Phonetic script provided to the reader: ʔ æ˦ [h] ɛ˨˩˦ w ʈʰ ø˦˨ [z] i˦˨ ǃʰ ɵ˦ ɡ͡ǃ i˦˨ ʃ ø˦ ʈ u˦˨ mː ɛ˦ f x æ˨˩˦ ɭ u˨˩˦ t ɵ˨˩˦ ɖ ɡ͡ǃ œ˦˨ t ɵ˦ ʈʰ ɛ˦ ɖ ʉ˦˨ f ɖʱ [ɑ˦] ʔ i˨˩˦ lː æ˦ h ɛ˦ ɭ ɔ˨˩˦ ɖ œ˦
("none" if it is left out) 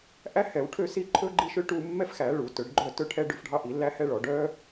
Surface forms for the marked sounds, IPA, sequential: h, s, ɑ˦

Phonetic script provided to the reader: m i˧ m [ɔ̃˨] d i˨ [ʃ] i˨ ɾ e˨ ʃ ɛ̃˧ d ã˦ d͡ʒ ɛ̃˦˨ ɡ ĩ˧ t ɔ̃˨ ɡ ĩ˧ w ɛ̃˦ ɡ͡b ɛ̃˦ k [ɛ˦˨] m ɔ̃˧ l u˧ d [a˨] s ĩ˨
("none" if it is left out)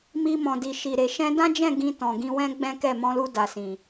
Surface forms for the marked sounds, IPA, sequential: ɔ̃˨, ʃ, ɛ˦˨, a˨

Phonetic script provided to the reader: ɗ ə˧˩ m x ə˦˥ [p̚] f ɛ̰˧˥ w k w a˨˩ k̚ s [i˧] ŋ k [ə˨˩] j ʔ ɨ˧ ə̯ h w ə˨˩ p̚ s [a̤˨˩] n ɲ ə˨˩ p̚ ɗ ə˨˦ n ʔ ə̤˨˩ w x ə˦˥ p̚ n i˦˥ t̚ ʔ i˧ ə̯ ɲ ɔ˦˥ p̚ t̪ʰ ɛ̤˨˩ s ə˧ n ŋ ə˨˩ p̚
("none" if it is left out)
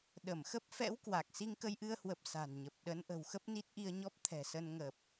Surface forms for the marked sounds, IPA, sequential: p̚, i˧, ə˧, a̤˨˩

